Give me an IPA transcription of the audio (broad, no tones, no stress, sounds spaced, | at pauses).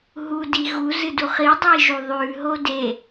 ɦ u d i ɣ u z ɨ d u χ i dˤ iː ʒ u ðˤ ʉː ɦ o d e